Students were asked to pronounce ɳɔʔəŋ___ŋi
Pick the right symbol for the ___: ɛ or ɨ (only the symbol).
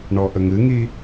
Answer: ɨ